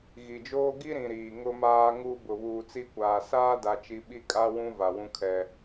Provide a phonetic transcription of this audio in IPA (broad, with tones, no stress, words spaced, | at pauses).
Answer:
ɣi˨d͡ʒoː˦ ɡi˦ɾĩ˨ ɾiː˨ ŋʊ˨maː˨ŋu˨ bʊ˨βuː˨ t͡si˦kʷaː˨ saː˦da˨t͡ʃi˨ ɓi˦kʼa˦ wũ˦ va˨wũ˦kʰɛ˦